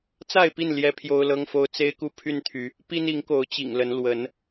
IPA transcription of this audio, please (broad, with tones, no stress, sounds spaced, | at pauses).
t͡s a˥˨ ɪ̯ p i˥˨ n l j ɛ˦ pʰ j o˦ ʊ̯ l ɤ˦ ŋ f o˦ ʊ̯ t͡s e˦ ɪ̯ k u˦ pʰ y˦ n t̪ʰ y˨˦ | p i˦ n i˨˦ ŋ k o˨˦ ʊ̯ t͡ɕ ḭ˨˩ ŋ l ə˨˦ n l w ə˨˦ n